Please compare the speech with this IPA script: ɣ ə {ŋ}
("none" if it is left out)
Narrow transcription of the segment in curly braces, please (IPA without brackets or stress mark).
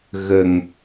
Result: ŋ